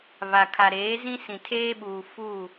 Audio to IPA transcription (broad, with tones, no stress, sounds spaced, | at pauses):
β a˨ kʰ a˨ ɾ eː˨˦ z ĩ˦ s ĩ˨ tʰ eː˦ ɓ uː˨ f u˦˨